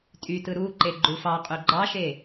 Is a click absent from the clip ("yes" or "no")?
no